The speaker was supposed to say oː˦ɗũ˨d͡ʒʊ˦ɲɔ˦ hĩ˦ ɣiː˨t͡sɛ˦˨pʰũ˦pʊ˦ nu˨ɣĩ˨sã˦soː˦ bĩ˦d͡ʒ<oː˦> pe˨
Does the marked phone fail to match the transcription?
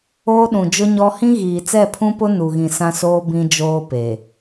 no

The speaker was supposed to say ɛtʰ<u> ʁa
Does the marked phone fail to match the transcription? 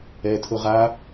yes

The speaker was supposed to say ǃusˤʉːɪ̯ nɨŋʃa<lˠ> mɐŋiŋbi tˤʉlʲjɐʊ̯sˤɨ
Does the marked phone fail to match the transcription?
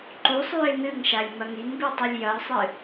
yes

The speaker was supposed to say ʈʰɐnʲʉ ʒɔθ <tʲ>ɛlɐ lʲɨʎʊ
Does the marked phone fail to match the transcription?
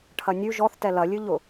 yes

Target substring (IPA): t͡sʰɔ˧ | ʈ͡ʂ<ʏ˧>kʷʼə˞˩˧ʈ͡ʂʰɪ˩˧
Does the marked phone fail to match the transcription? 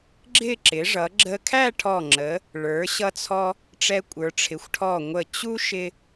yes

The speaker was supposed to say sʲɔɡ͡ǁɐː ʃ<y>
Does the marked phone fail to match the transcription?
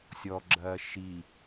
yes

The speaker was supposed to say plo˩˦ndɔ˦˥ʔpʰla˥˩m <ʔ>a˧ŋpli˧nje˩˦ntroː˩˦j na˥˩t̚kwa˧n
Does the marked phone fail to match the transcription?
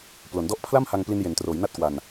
yes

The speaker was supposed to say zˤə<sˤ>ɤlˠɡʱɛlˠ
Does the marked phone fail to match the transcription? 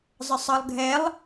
no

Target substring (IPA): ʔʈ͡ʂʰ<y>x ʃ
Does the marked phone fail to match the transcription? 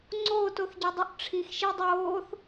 yes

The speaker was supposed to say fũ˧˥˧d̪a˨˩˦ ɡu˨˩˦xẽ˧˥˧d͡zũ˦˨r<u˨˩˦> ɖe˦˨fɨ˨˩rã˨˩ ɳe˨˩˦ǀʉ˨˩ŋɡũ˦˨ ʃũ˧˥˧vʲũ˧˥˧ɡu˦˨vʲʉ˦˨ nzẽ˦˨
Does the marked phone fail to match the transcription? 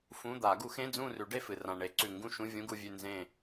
yes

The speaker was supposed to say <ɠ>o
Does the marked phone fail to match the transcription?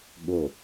no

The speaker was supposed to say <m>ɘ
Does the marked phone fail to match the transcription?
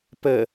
yes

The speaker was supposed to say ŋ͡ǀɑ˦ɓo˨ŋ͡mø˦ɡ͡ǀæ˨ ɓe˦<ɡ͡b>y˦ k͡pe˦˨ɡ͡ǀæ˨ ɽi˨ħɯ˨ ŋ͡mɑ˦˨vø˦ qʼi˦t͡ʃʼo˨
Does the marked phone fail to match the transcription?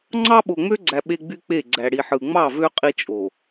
no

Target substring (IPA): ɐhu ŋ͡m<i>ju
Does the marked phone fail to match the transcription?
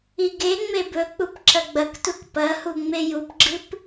yes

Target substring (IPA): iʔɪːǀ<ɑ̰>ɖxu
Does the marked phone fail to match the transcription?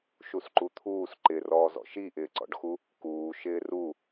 yes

